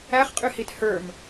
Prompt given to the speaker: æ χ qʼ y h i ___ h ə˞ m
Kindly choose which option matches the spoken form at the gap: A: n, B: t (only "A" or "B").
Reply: B